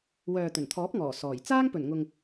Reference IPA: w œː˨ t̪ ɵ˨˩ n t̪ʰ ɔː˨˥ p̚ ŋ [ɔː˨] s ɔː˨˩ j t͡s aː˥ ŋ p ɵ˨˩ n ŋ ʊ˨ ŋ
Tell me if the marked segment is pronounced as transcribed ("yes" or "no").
no